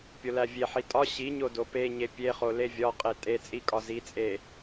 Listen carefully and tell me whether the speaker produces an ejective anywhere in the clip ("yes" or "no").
yes